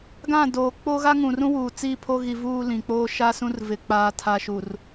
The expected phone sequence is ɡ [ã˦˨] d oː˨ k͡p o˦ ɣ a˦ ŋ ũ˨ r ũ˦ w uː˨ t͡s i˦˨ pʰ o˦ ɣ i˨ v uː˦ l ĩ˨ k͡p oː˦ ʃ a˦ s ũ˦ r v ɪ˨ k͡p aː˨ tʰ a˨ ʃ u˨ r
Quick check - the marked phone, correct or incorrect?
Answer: correct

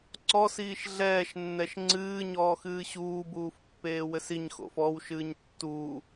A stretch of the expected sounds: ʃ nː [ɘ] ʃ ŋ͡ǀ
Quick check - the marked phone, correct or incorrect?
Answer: incorrect: ɛ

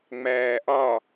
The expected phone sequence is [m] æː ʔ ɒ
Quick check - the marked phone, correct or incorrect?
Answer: incorrect: ŋ͡m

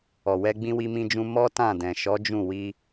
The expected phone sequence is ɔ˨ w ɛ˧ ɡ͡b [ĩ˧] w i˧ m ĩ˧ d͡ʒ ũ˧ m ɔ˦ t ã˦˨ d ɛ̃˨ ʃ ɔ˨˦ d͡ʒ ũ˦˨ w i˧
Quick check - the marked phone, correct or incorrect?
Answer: correct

